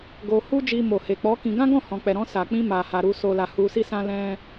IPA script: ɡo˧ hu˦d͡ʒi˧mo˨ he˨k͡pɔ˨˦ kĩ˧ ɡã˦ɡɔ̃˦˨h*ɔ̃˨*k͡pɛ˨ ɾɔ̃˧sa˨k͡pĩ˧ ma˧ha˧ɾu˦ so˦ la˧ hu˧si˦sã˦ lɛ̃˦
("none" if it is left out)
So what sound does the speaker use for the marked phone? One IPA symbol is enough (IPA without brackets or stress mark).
ɔ̃˨